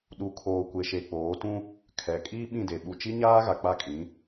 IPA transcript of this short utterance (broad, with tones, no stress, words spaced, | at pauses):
ɗu˨kʰoː˨ kʷe˨ʃe˨k͡poː˨˦tũ˦ | kʰɛ˨ kʼiː˦ɓĩ˦˨de˨ ɓu˨t͡ʃi˦ɲaː˦ ɣa˨k͡pa˦˨kʼĩ˨˦